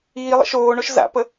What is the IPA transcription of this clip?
iː lˠ ə̰ ʃ oː ɳ o ʃ z a̰ p ə

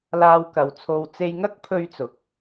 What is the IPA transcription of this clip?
l aː˧ w k ɐ˨ w t͡sʰ o˧ w t͡s e˧ j ŋ ɐ˥ k̚ pʰ ɵ˧ ɥ t͡s ʊ˨˥ k̚

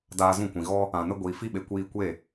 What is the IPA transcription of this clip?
d aː˧ z ũ˦˨ kʷ ĩ˨ ɣ ɔ˦ | ã˨ n ə˦ ɡʷ iː˨ f i˦ ɓ e˨ kʷ iː˧ kʷ e˦˨

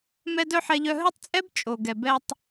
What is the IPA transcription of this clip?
m ɛ˦ d œ˦ ħ ɛ˧ ʎ œ˧ ɦ ɵ˦ tˤ t͡sʼ ɛ˦ b t͡ʃʼ o˨ ɡ ɛ˨ b ɛ˧ tˤ

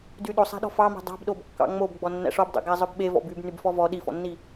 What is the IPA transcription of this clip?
d y ɗ o sˤ æ̤ ɗ ɔ̤ f ɑ m æ̤ dˤ ɑ̤ b ɗ o b kː ɑ̰ ŋ͡m o b ɡ͡b ɔ nː æ̰ ʂ ɔ b dˤ ḛ ɡ æ zˤ œ b ɓ e v ɔ̰ b y b n y b f ɔ v ɔ ɗ i f ɔ̰ nː i

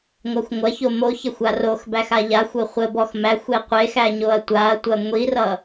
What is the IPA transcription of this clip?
ŋʷ a xʷ ŋʷ ɐ ç o m o ç ɐ xʷ a r o x b æ x a ʎ a xʷ o χʷ ə b ɔ x m æ xʷ e qʷ e x æ ɲ o ɐ̯ tʷ a ɐ̯ tʷ ɐ ŋʷ i r ʌ

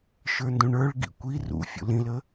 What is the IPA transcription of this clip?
ʃ ə˞ n d ũ ɳ ə˞ ɭ ɡ ḭ kʷ i r ṵ fʲ ṵ l ĩ l ə

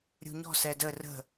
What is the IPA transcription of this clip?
ɾʲ ṳ ɲ ɔ̤ s ɛ d ə r ə̤

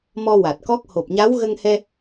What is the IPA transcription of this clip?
m ɔ˧ w a˨˩ t̚ k ɔ˦˥ k̚ h o˨˩ p̚ ɲ a˧˥ w ɣ ə˧ ŋ h ɛ˧

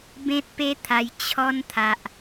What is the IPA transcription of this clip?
b ẽ˦ t̚ p e˦ t̪ʰ a˧ j t͡ɕʰ ɔ˧ n t̪ʰ a˨ ʔ

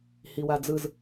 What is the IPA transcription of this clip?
h i w a d͡z ɯ z

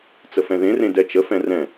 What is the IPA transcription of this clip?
t͡s ə f ɛ̃ ð ẽ r ẽ d ɛ t͡ʃ ə f ɛ̃ r ɛ̃

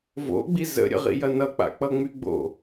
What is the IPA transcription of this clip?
v o̰ ɡ͡b i z ə̰ ɾʲ ə̰ ʁ ḭ j ɐ n ʌ k͡p a̰ k͡p ʌ ŋ͡m y ɡ͡b o̰

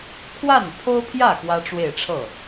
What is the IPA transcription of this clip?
kʰ w a˥˩ n pʰ o˥ ʊ̯ pʰ j ä˥˩ k w ä˥ ʈ͡ʂ w e˥˧ ɪ̯ ʈ͡ʂʰ ɤ˥˩

